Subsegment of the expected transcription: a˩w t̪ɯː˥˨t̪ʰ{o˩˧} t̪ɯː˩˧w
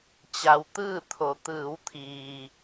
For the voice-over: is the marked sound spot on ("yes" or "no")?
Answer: yes